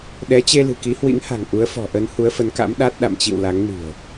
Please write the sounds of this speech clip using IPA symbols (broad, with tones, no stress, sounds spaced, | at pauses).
ɗ ɛ˨˦ t͡ɕ e˧ l ɨ̤˨˩ k i˨˦ h w ḭ˧˥ ŋ h a̤˨˩ ŋ ʔ u˨˦ ə̯ f ɔ̤˨˩ ʔ ə˧ n h u˨˦ ə̯ f ə˨˦ n k a̰˧˥ m ɗ a˦˥ t̚ ɗ a̰˧˨ m t͡ɕ ḭ˧˨ w l a˨˦ ŋ n i̤˨˩ ə̯